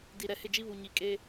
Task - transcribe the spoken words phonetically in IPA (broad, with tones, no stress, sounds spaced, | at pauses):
d i˨ ɾ ɛ˨ h ɪ˦˨ d͡ʒ i˦ β u˨ ɲ i˨ kʼ e˦